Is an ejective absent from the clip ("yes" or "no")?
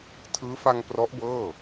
yes